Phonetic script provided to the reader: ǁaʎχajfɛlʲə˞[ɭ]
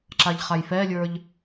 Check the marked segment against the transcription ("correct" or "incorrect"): incorrect